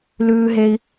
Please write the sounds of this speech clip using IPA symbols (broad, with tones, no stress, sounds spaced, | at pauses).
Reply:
l ʉː˥ ɦ e˥ i̯